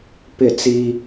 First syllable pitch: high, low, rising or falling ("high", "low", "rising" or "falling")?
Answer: falling